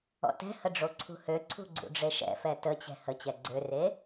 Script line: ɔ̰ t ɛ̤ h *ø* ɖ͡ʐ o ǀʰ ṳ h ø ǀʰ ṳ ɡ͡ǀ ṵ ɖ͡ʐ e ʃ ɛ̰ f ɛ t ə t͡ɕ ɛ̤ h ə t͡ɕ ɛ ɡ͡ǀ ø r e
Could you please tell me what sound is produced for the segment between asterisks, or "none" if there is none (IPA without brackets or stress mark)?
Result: ə